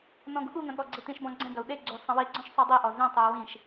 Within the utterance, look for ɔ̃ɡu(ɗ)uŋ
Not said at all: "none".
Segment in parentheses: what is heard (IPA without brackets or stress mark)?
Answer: ɠ